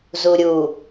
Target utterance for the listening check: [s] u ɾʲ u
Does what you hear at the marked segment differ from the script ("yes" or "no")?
yes